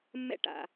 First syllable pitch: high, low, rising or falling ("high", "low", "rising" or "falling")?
high